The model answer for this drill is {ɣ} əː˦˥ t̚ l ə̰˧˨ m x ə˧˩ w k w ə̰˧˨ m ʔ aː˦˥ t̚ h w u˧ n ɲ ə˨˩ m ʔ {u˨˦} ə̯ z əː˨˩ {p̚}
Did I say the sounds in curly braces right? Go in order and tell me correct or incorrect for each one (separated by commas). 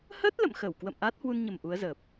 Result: incorrect, correct, correct